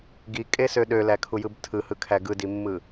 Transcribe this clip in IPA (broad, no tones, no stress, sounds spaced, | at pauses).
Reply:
ɡ i kʼ e s ø ɗ ø l æ kʰ u j ɯ b tʰ ɯ h ɯ kʰ æ ɡ ɯ d i mː ɯ